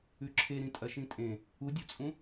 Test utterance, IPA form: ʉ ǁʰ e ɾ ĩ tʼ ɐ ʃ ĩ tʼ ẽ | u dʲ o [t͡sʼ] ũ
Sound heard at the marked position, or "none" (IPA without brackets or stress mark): t͡sʼ